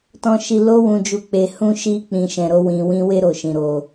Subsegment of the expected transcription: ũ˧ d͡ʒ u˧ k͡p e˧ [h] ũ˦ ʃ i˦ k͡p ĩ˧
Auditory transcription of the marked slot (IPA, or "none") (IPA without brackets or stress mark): h